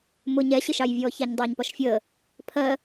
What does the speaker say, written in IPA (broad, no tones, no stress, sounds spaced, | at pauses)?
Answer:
m ʊ ɲ ɛ ɕ ɪ ʃ ɑ j vʲ ɔː ç æ ɲ dˤ əː ɲ p ɒ ʃ fʲ əː | pʰ ɜ